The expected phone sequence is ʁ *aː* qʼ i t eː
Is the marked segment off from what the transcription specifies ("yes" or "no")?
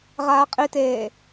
no